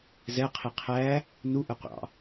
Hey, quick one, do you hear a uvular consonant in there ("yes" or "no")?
yes